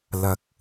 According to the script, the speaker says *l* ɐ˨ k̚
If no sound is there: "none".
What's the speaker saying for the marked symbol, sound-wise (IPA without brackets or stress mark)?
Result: l